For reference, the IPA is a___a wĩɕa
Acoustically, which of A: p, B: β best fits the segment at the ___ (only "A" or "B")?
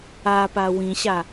A